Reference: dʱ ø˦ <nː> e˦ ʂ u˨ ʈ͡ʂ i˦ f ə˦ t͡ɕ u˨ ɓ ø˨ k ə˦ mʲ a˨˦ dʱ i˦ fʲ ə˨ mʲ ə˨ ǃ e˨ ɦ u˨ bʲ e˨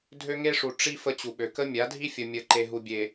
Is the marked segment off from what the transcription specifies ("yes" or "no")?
yes